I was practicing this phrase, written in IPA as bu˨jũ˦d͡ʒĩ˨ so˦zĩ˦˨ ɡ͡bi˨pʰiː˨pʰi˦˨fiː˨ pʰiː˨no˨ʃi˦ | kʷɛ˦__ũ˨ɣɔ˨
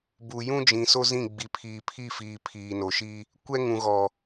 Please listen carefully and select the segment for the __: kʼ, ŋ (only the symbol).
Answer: ŋ